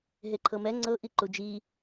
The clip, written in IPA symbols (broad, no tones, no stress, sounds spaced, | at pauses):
ɦ e ǃʰ ɤ m ɛ ŋ͡ǀ ɤ ʔ i ǃ u d͡ʒ i